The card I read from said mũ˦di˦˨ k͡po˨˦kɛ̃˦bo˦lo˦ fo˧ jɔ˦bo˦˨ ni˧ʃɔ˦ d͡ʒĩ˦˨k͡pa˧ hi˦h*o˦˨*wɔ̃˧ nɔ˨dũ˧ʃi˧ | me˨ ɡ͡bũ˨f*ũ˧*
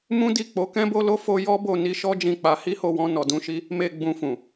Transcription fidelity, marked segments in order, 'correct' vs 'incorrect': correct, incorrect

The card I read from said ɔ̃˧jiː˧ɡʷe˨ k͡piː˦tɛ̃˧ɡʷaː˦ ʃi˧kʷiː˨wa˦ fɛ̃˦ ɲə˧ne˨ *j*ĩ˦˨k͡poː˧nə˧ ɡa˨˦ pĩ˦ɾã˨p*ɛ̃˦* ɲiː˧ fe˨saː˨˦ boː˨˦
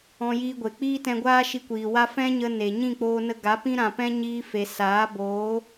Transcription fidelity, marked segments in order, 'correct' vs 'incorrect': incorrect, correct

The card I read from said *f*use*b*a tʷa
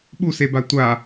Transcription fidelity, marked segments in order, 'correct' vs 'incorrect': incorrect, correct

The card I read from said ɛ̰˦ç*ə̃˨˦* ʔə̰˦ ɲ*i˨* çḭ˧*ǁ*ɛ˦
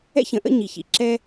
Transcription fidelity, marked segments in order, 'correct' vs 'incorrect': correct, correct, correct

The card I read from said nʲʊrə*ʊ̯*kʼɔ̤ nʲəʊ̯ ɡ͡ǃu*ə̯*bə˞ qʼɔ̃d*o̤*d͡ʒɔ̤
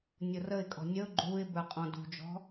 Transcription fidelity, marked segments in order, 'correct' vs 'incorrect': incorrect, incorrect, incorrect

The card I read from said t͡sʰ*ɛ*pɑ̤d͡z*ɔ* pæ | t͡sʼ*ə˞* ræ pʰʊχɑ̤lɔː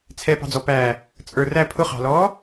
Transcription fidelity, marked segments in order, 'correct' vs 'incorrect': correct, correct, correct

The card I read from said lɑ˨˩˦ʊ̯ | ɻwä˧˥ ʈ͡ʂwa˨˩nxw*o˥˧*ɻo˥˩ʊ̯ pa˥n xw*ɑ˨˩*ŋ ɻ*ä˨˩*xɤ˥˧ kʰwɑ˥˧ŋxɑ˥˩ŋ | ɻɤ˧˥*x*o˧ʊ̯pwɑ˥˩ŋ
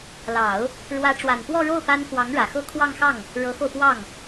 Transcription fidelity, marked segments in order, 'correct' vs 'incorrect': incorrect, incorrect, correct, correct

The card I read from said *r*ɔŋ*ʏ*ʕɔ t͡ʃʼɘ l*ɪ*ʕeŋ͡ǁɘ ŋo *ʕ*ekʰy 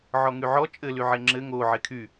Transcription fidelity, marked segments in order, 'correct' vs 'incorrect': incorrect, incorrect, incorrect, correct

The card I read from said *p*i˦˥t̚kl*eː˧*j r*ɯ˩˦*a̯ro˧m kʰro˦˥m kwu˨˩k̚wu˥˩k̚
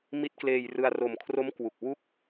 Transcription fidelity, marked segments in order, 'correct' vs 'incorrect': incorrect, correct, incorrect

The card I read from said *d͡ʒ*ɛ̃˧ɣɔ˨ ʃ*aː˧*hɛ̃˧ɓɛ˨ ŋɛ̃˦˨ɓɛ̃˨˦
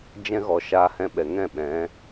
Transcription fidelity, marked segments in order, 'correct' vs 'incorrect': correct, correct

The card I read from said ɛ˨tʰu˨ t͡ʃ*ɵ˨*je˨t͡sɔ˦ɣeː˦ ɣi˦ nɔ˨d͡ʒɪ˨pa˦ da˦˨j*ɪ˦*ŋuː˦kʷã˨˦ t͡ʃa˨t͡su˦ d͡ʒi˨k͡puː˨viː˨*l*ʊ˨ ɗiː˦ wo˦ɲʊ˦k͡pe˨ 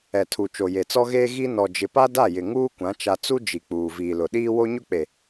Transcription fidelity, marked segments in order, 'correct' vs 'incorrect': incorrect, incorrect, correct

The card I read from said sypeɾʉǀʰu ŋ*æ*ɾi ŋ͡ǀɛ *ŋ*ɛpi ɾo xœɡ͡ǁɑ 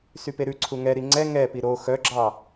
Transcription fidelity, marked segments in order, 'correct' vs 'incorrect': incorrect, correct

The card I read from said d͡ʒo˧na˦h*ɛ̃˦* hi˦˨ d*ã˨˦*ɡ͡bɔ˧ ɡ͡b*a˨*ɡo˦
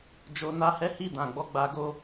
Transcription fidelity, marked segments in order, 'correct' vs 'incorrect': incorrect, incorrect, incorrect

